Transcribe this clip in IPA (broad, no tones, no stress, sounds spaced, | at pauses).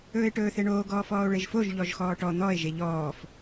ɵː e̯ ʈ ɵː θ e ɳ oː ɡ ɔː f ɔː o̯ ɭ e ʒ f o ʒ ʎ ɔ ʒ x ɔː ʈ ɔ n̪ ɔ e̯ ʒ e ʎ ɔː f